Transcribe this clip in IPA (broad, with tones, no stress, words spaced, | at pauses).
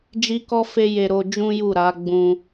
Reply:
d͡ʒi˦kɔ˦fe˦je˧ ɾo˧ d͡ʒũ˦ju˦˨ ɾa˨˦ɡ͡bũ˧